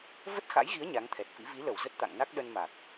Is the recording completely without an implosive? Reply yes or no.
no